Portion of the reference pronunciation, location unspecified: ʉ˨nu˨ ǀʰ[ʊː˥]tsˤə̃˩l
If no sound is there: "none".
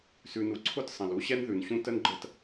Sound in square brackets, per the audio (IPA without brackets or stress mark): ʊ˥